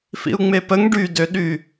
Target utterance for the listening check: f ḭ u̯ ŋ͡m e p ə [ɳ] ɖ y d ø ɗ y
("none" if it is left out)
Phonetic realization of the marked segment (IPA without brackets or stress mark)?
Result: ŋ